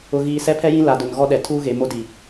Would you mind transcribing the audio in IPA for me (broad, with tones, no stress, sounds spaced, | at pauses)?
ʊ˨ ɣ iː˨ s ɛ˦ pʰ ɛ˦ j ĩ˦ l a˨ d ʊ˨ n ɣ ɔ˦ ɗ ɛ˨ tʰ uː˦ ɣ e˨ m o˦ d i˨